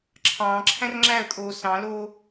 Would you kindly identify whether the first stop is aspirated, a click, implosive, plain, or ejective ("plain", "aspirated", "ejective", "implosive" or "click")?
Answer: click